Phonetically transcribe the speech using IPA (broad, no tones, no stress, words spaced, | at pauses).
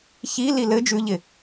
çili lɘ d͡ʒʉʎɪ